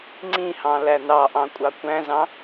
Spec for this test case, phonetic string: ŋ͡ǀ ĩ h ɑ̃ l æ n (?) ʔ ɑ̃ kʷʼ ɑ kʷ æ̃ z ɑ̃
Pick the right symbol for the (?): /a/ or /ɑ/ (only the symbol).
ɑ